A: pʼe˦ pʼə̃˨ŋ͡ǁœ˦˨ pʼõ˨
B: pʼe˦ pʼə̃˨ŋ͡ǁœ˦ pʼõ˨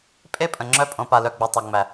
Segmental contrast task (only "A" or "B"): B